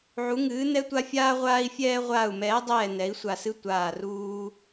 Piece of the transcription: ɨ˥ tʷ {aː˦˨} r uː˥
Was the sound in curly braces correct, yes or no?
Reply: yes